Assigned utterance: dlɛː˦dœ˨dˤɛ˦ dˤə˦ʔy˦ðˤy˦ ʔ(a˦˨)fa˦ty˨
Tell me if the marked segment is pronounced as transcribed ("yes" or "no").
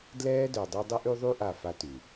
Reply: yes